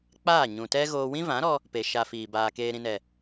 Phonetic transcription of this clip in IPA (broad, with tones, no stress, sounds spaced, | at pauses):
k͡p aː˦˨ ɲ ũ˨ t ɛ˦ ɣ oː˦ w ĩ˦ v ã˨˦ ɾ ɔ˧ | p e˧ ʃ a˧ f iː˨ b aː˧ k eː˧ ɾ ĩ˧ n ɛ˨